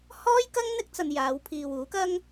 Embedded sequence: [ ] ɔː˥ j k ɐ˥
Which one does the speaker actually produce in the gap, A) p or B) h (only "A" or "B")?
B